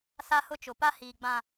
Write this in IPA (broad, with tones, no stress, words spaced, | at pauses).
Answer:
sa˦hʊ˦t͡ʃʊ˨ pa˦hiː˨ɡ͡bã˨